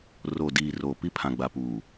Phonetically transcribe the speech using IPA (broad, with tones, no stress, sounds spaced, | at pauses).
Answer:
r o˨ d iː˨ r oː˨ p i˦ pʰ ã˨ ɡ͡b a˨ p uː˨